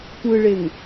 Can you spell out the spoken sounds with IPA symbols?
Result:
tʷ ɯ ɭ e ŋ

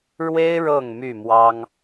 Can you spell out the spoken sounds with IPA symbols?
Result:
ɻ w e˦ ɪ̯ ɻ ɤ˥˨ ŋ m y˥˨ m w ɑ˦ ŋ

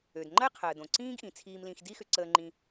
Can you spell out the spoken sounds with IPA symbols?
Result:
ø˩ d ŋ͡ǃ ə˥ ɪ̯ qʰ əː˩ d õ˩ ǀ ĩː˦ ɡ ʔ ĩ˩ t͡sʰ iː˨ m l ĩ˨ x d i˥ x ʏ˨ ǀ əː˨ ŋ͡ǃ ĩ˨

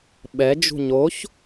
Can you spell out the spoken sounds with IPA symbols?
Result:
ɓ ɛ d͡ʒ ṳ ɲ o ç

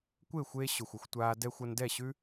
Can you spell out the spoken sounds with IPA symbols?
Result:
kʷ eː˦˨ xʷ eː˧ ɕ ʊ˨ xʷ ʊ˧ xʷ tʷ aː˧ d ɛ˧ xʷ ʌ˧ n d ɛ˦˨ ɕ ʉ˦

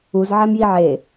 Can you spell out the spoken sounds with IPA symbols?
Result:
u z ʕ æ m j i ʕ e

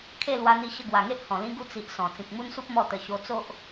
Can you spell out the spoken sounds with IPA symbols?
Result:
kʰ e˥˧ l w a˧ n̪ i˧ ɕ ə˧ ɡ w a˨˩ ŋ e˦ ʔ h ɔ̃˨˩ l ĩ˦ ɡ u˥˧ t͡s i˨ ʔ s ɔ̃˨˩ t͡s ĩ˨ k̚ m u˦ n s u˦ p̚ m ɔ˥˧ t̪ ə˧ ɕ o˧ t͡s o˦ ʔ

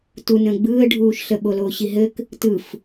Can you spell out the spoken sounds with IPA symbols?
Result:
t u n ə̃ː ɡ͡b ɯː ə̯ ɖʱ uː ʃ ɬ ə ɓ o l oː ɕ i ɦ ɘ k | t ɯ f

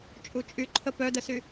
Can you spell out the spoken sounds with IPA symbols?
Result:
t͡ʃʼ u t͡ʃʼ y ǃʰ ə p œ d ə s y

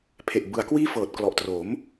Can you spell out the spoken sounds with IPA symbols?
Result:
pʰ e˨˩ ʔ b ɯ˩˦ a̯ k w iː˥˩ f ɤː˨˩ t̚ k l ɔ˨˩ ʔ t r o˩˦ m

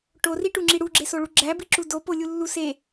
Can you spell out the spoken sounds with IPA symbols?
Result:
ʈ o r i ʈ u ŋ͡ǁ i ɽ u ɡ͡ǁ e s o ɭ u ɡ͡ǁ æ b i ǁ u d o p o lʲ u lː u s e

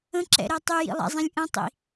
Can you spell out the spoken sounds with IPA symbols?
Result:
ə̃ ǁ ɛ̰ ɾ ɛ tˤ y j ḭ lˠ ɛ̰ zˤ ĩ lʲ ʔ ə̃ tˤ ḭ

